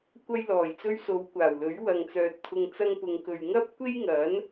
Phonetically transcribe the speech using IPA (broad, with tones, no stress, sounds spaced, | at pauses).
kʷ ɐ˧ j l ɔː˨˩ j t͡s ɵ˧ ɥ s o˨˧ w kʷ aː˨˩ w l ɵ˨˥ ɥ w ɐ˨ ŋ t͡s œː˨ t̚ t̪ʰ ʊ˨ ŋ t͡s ɐ˥ ŋ p ʊ˧ ŋ k ɵ˨ ɥ ŋ ɐ˥ p̚ kʷ e˥ j ŋ ɐ˨˥ n